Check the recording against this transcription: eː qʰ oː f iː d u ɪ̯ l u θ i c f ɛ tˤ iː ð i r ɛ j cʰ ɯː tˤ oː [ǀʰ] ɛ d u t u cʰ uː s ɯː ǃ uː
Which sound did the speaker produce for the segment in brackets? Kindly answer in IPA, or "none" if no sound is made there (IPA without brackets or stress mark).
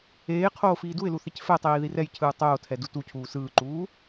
tʰ